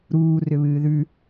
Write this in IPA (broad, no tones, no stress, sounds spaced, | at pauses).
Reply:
ɾ uː r ʏ β ɨː ð ʉ